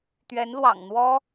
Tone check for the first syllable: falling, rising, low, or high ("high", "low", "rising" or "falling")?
rising